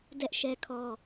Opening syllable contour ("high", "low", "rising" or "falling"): high